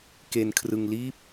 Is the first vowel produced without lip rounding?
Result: yes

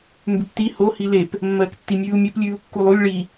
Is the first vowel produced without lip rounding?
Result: no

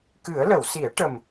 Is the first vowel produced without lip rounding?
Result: yes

